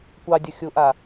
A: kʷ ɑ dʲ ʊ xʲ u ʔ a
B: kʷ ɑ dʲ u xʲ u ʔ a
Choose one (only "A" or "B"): B